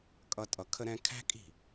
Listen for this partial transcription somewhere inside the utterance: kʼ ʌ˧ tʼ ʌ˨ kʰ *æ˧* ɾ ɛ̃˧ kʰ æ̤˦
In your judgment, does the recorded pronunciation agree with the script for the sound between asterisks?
no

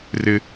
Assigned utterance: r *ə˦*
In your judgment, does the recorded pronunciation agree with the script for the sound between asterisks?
no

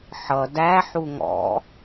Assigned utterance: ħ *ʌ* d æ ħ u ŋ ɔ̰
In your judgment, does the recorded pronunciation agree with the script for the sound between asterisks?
yes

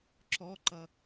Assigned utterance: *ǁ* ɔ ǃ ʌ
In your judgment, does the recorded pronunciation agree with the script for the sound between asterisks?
yes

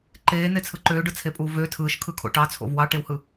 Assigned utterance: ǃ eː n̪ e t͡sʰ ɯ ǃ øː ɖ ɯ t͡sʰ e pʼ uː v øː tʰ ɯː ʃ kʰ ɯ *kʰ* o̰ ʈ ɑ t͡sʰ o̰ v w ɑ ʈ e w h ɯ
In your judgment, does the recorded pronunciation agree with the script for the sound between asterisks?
yes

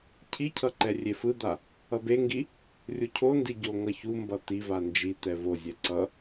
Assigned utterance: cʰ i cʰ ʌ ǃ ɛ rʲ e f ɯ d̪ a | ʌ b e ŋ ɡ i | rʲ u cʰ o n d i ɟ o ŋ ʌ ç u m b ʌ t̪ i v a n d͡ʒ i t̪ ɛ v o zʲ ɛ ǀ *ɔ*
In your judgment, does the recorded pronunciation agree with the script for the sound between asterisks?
no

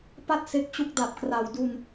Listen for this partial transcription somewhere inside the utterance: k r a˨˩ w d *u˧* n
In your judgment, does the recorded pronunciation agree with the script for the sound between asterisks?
yes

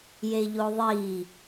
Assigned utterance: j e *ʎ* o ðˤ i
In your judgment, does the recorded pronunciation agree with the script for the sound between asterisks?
yes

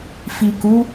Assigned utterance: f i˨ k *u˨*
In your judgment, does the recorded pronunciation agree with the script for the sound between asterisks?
no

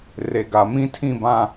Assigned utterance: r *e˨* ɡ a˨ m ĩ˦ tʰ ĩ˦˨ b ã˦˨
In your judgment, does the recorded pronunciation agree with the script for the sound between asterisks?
yes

